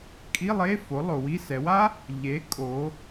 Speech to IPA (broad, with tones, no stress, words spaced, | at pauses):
kʼi˧˥˧ lˠe˧˥˧fo˩˥ lˠo˩˧wi˧˥˧ sɛ˩˧wa˥ | ʎe˩˥kʼo˩˧